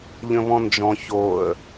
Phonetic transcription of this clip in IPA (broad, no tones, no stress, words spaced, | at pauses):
ʎə̃βɔ̃nd͡ʒɔ̃ çoə̯